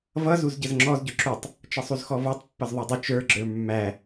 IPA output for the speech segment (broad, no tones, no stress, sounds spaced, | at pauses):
v ʌ z u z ɟ ə z ŋ͡ǁ ɔ z ɟ ʊ ǁ u tˤ | t͡ʃ ʌ sˤ u z x ɔ v ɔ tˤ pː ʌ z ðˤ ə˞ dˤ ʊ t͡ʃ ə˞ ɡ͡ǁ ə˞ mː æ